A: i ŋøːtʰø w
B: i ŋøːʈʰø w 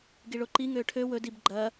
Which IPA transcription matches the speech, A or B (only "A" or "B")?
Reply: B